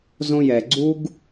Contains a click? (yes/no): yes